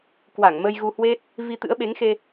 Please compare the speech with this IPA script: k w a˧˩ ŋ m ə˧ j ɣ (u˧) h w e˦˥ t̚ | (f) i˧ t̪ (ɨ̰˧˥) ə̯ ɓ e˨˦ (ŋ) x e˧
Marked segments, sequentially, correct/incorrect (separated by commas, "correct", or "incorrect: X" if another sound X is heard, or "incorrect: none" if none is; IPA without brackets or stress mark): correct, incorrect: v, correct, correct